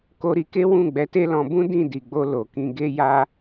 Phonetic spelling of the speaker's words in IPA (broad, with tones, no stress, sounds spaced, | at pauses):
k o˧ ɾ i˧ k e˦ w ũ˦˨ ɡ͡b ɛ˨˦ t e˦ l ɔ̃˧ b ũ˦ d ĩ˦˨ d i˨ ɡ͡b o˧ l o˨ k ĩ˧ ɡ e˦ j a˦